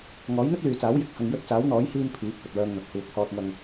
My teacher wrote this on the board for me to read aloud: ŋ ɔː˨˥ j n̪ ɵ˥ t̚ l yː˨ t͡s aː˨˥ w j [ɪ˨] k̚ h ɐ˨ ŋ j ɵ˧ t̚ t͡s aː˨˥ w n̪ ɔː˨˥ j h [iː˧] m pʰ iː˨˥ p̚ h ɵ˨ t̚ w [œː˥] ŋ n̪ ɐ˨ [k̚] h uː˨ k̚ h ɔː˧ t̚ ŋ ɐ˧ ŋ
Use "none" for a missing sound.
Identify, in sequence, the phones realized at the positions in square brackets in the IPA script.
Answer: ɪ˨, iː˧, œː˧, k̚

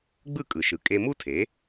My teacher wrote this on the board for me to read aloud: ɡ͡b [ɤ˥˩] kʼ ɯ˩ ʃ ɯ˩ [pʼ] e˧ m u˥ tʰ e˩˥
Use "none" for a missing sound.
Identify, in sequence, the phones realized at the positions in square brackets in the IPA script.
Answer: ɯ˥˩, kʼ

